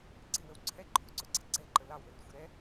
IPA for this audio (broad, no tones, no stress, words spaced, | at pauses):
ɡ͡ǀɪwəw ǀʰɛǃʰuǀʊɡ͡ǀɛ ɡ͡ǀɛǃə lɑwlərxʷɪ ɾɛ